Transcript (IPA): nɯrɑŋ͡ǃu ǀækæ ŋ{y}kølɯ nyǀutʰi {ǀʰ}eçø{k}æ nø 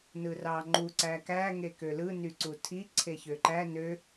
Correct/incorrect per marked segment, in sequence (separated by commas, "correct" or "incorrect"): incorrect, correct, incorrect